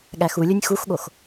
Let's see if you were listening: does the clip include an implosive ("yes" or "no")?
yes